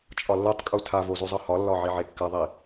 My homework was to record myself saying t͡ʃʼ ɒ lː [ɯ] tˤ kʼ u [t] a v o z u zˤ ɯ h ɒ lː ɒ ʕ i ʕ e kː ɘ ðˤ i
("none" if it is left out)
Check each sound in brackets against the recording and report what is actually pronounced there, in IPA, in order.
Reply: ɯ, tʰ

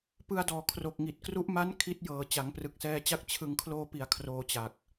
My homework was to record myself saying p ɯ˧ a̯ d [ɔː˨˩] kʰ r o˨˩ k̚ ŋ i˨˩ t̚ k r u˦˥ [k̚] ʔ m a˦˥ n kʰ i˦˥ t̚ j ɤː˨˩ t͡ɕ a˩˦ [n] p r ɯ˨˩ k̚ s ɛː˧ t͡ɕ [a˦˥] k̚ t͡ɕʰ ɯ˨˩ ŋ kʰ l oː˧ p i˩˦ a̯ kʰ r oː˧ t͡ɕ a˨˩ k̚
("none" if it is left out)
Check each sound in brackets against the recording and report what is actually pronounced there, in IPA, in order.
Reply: ɔː˨˩, none, ŋ, a˦˥

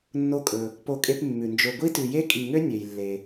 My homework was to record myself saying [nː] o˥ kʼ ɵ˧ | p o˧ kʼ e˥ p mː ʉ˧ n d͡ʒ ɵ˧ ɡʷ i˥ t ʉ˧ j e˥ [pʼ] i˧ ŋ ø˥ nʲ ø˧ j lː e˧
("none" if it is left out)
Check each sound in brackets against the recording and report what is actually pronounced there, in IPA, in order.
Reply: nː, kʼ

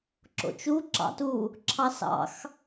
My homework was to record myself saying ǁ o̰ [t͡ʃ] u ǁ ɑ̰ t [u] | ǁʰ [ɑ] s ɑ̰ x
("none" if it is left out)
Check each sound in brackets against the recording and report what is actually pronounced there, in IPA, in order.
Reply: t͡ʃ, u, ɑ

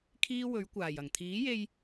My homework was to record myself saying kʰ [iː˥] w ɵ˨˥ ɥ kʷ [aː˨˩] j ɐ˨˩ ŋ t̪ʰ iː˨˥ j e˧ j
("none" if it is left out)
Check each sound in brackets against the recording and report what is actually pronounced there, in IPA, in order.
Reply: iː˥, aː˨˩

